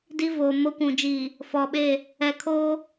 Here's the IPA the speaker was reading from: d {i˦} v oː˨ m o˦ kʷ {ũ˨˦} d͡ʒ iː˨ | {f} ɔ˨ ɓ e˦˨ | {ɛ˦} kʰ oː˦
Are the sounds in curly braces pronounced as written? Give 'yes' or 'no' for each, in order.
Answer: yes, no, yes, no

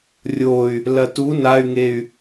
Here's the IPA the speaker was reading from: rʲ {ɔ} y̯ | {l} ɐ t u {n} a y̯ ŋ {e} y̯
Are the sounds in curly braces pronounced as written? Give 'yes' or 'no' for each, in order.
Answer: no, yes, yes, yes

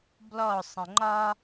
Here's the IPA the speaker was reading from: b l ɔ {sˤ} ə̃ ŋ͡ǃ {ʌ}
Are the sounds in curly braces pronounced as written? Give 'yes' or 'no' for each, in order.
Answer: yes, no

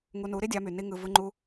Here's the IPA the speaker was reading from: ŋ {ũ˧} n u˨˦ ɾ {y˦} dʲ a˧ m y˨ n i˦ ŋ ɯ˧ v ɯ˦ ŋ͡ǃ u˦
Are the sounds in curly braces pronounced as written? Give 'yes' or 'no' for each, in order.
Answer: no, no

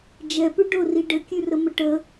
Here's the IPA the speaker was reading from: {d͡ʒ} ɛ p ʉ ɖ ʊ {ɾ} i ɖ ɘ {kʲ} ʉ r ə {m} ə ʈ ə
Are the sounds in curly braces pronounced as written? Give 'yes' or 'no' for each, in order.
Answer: yes, no, yes, yes

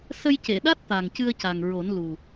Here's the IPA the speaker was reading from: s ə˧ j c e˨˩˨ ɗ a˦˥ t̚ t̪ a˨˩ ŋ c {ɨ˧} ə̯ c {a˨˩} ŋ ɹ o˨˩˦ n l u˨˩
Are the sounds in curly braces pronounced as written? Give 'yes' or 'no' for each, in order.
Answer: yes, yes

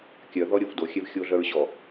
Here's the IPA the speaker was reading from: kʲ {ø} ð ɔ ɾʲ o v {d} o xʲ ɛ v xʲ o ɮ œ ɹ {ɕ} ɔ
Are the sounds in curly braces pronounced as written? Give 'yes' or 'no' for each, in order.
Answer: no, yes, yes

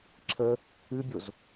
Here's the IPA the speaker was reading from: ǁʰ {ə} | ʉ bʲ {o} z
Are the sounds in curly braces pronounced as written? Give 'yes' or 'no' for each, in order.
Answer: yes, yes

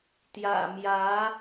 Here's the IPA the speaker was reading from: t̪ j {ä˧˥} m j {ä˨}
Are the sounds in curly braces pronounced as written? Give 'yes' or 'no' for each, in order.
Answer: no, no

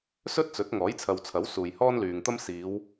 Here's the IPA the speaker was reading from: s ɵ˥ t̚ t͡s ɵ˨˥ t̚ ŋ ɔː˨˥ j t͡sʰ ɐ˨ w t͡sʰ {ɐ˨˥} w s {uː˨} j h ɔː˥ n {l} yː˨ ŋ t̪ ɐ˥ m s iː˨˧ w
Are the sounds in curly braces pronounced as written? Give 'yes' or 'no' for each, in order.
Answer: yes, yes, yes

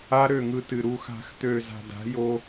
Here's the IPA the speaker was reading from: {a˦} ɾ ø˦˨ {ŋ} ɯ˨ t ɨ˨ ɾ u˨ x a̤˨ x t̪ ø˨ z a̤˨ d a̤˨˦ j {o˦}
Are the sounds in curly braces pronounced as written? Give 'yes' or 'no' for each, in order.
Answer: yes, yes, yes

